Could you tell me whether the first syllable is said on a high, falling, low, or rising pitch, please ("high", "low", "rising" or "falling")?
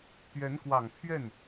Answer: rising